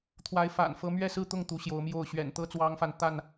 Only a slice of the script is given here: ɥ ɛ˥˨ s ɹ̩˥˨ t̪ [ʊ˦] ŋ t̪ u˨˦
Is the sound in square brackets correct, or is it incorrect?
incorrect